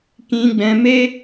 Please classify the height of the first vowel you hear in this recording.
high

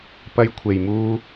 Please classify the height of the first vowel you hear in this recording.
low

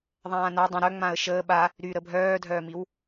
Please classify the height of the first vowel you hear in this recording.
low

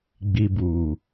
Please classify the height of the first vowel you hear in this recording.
high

